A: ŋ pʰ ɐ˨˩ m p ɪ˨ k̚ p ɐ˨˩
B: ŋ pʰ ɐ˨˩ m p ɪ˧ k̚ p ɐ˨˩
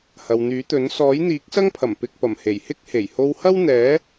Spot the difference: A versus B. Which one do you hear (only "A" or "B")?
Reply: B